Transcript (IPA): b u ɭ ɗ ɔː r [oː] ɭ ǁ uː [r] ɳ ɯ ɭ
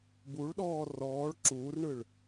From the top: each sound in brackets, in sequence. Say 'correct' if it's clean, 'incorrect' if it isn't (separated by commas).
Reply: incorrect, correct